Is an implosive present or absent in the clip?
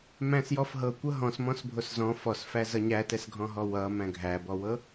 absent